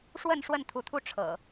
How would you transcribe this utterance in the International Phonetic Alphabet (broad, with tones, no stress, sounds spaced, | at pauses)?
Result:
ʂ w ə˥˨ n ʂ w ə˥˨ n t̪ʰ u˨˦ t̪ʰ u˥˨ ʈ͡ʂʰ ɤ̰˨˩